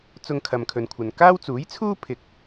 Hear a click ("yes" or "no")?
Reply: no